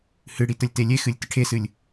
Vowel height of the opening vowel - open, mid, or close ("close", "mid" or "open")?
close